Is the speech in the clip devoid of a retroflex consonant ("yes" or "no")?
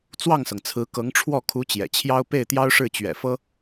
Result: no